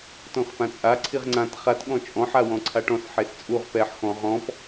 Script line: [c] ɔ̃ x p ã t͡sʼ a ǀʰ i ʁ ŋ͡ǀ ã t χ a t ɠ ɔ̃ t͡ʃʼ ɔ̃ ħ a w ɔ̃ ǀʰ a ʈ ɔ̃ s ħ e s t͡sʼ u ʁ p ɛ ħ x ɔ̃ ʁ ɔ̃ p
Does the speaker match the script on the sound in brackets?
no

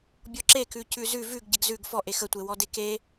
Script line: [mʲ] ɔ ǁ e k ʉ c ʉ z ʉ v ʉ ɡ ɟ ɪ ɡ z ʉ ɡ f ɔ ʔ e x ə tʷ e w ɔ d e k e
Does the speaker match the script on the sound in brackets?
no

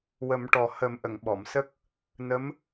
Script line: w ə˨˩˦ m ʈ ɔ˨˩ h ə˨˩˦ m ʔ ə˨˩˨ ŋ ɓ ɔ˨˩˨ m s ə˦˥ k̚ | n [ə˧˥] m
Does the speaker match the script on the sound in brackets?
yes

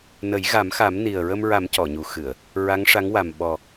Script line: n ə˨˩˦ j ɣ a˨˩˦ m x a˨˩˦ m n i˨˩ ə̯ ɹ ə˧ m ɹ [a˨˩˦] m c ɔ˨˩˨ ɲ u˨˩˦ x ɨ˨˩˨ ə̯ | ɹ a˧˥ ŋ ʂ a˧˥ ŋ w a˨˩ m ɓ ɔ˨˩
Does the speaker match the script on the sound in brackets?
yes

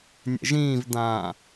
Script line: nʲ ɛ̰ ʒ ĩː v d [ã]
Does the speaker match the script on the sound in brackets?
yes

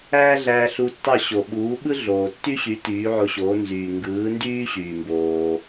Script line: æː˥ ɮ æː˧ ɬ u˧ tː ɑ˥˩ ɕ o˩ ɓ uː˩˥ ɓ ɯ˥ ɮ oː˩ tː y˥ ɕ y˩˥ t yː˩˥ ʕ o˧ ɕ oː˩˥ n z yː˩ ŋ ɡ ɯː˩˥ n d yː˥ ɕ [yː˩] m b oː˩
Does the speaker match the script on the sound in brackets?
yes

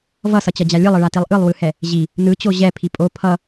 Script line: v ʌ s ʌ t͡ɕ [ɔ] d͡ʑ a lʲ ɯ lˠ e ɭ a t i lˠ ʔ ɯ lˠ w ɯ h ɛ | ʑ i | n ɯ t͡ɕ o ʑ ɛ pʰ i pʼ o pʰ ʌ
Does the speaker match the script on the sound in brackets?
no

